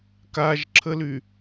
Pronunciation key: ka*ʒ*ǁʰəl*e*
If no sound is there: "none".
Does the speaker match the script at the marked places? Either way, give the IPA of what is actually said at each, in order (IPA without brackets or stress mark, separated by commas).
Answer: ʒ, y